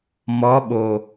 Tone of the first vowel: rising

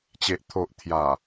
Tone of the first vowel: low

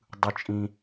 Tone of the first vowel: low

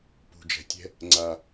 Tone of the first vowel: low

